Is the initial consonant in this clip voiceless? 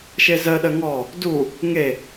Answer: yes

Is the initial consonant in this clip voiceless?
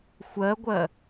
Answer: yes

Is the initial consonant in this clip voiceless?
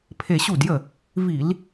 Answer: yes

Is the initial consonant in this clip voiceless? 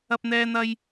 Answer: yes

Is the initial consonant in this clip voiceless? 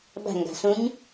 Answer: no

